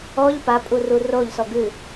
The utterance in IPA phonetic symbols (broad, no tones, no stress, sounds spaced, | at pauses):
ɔ ʎ p a pʼ u r u r o ʎ s ɔ ɡ ɨ